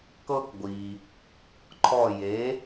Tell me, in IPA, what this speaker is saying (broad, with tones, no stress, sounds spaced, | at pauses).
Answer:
k ɤ˦ k ɡʷ i˩ | ǃʰ ɔ˧˩ j e˩˥